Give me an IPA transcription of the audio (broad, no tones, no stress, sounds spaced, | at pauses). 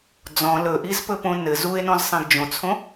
d͡z ɔ̃ l ɵ ʔ i z p ɵ p õ n ɘ z u e̯ n ɔ̃ z sˤ ẽ ɡ d͡ʒ õ t͡sʰ õ